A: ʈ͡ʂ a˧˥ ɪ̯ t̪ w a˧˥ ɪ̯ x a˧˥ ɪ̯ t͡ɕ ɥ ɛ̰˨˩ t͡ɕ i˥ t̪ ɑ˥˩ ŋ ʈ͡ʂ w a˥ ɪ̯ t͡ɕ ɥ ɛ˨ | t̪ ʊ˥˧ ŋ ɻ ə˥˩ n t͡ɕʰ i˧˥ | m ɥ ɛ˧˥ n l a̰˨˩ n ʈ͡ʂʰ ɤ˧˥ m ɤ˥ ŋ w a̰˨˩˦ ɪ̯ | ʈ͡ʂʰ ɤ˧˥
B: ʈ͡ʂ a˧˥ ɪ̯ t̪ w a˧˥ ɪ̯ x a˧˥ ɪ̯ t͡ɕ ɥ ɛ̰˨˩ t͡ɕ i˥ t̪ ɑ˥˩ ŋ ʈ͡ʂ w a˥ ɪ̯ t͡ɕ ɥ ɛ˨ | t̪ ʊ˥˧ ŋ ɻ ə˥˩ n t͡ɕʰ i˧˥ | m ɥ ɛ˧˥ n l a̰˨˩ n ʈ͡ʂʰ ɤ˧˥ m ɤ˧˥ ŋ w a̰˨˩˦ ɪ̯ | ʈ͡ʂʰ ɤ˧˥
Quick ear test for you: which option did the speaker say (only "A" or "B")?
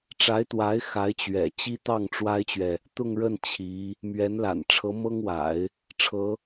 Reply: A